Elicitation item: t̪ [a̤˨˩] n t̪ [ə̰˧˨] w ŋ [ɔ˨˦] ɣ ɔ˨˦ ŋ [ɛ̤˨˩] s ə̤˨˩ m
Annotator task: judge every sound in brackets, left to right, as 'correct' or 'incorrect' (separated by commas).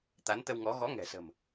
incorrect, incorrect, correct, correct